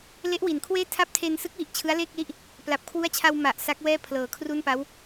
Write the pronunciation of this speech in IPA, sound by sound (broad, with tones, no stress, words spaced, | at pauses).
le˦˥ʔwi˩˦nkʰweː˥˩ tʰa˦˥p̚tʰeː˧nsɯ˦˥k̚wi˨˩ʔ t͡ɕʰɯ˦˥a̯leː˥˩k̚li˦˥ʔ | pla˨˩p̚kʰwu˦˥a̯t͡ɕʰa˧w ma˨˩ʔ sa˦˥k̚wɛː˥˩ pʰlɤː˨˩kʰru˥˩npa˦˥w